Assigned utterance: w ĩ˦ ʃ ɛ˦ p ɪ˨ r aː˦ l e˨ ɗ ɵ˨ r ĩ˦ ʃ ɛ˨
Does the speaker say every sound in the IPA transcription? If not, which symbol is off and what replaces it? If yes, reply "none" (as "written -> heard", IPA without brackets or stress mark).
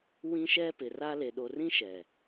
ɵ˨ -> o˨